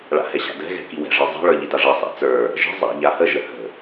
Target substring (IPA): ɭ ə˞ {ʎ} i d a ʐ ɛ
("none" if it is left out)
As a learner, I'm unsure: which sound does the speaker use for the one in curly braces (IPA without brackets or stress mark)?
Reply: ʎ